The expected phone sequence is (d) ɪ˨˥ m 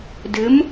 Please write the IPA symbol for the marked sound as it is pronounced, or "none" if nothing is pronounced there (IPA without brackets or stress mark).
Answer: d